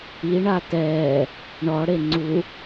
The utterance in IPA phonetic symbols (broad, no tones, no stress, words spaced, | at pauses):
iɳa tɛː | ɳɔɽe ŋ͡ǀu